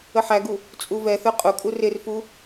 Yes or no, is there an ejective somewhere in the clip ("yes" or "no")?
yes